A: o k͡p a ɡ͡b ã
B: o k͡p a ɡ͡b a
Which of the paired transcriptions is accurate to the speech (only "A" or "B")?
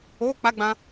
A